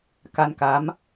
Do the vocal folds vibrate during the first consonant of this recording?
no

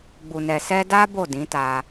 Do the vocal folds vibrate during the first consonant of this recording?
yes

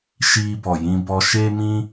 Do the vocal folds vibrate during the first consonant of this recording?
no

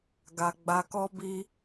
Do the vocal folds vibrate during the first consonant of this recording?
yes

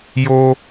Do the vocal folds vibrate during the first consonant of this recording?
yes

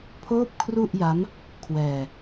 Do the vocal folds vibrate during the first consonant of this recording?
no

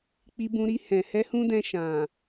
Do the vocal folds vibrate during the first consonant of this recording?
no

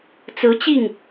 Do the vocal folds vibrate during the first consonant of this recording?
no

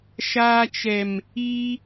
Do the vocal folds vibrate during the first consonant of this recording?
no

